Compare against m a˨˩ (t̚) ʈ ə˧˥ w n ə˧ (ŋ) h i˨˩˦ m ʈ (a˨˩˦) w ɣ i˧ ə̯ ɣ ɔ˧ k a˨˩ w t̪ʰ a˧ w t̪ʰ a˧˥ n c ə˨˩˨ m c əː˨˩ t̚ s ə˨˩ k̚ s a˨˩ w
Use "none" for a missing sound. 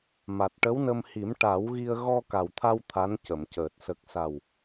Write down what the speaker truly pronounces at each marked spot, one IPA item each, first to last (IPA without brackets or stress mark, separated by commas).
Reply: t̚, m, a˨˩˦